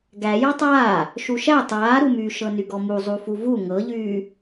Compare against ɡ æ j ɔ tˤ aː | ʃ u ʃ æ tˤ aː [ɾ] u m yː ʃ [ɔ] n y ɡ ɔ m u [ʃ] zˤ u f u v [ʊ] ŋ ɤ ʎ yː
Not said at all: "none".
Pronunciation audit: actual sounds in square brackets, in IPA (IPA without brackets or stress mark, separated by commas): ɾ, ɤ, none, u